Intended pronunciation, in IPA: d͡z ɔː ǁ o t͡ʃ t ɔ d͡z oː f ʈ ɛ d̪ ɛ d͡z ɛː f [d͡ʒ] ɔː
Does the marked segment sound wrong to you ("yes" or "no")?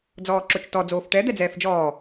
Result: no